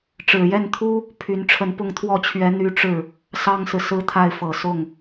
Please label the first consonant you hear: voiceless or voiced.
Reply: voiceless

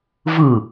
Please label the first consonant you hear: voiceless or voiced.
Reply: voiced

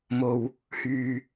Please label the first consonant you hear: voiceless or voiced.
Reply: voiced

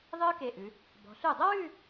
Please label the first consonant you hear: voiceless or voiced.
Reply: voiced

